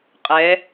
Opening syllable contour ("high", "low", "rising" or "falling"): rising